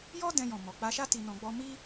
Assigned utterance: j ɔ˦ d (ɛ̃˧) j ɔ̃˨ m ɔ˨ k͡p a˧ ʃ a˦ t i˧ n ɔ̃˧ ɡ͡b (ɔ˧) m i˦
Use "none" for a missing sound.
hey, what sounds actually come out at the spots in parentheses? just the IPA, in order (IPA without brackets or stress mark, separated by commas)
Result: ɛ̃˧, ɔ˦